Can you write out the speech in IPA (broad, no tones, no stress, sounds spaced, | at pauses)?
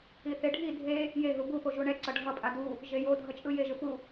i θ e ɖʱ i dʱ e | j e ɦ u b u p o ʒ u ɳ ɛ ǀ ʌ ɖʱ ʌ pʼ a d u | ʒ e j o dʱ ʌ t͡ʃʼ ɯ j e ʒ ɯ p u